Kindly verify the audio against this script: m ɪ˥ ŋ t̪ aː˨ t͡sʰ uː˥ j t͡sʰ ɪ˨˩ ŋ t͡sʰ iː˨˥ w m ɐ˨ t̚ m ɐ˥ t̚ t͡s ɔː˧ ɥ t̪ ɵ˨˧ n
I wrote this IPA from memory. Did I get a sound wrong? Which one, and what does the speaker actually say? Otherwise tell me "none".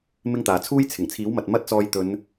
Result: ɥ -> j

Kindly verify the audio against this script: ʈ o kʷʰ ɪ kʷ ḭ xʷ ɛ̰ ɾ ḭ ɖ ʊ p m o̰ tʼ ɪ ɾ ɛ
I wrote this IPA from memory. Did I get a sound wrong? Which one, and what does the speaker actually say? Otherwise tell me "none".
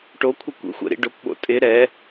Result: m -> ɓ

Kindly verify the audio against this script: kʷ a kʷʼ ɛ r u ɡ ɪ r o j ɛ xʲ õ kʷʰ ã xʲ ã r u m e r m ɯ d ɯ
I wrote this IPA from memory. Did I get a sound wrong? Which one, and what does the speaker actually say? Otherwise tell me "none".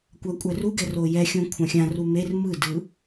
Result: ɪ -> ɛ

